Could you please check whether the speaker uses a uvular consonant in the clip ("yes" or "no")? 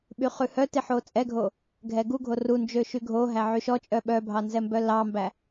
yes